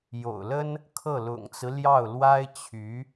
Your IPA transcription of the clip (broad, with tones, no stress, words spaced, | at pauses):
jo̰˨˩ʊ̯lə˥n | kʰɤ˥˩ lʊ̰˨˩ŋt͡sɹ̩˦ ljɑ˥˩ʊ̯ lwa˥ɪ̯ t͡ɕʰy˧˥